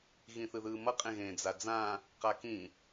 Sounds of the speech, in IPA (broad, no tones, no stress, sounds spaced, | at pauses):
ɣ ĩ θ ɯ ð ɯː m ʌ qʼ ẽ ɣ ẽː d͡z a d͡z ãː | q a k ĩ